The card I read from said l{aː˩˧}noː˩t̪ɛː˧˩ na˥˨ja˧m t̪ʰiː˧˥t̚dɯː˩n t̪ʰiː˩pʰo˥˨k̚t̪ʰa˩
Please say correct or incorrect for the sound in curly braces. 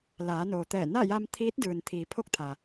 correct